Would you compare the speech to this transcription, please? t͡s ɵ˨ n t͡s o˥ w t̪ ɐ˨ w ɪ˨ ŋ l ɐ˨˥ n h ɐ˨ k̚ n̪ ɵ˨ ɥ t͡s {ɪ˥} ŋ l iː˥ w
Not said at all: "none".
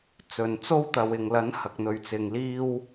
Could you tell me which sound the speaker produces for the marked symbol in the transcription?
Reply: ɪ˨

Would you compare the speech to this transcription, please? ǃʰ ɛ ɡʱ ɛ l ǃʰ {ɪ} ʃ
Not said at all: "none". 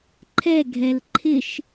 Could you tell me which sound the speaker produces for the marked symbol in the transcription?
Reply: ɪ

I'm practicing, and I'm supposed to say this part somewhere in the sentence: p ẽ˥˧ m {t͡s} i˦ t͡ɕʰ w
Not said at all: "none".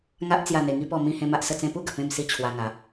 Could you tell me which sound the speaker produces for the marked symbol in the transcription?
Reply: s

